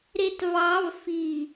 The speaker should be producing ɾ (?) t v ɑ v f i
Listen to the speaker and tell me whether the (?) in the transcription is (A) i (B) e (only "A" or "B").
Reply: B